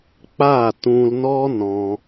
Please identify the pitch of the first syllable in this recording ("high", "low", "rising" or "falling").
falling